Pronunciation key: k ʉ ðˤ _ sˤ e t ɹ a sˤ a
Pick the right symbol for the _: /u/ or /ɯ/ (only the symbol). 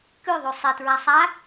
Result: u